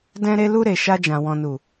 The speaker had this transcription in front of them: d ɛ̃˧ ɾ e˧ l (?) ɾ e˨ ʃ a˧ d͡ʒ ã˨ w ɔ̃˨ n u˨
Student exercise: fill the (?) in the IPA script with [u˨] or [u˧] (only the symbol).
u˧